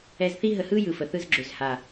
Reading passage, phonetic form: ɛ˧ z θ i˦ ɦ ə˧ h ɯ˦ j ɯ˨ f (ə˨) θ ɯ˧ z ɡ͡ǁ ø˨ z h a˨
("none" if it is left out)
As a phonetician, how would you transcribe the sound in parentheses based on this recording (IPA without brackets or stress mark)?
ə˨